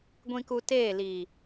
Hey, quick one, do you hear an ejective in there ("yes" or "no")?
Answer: no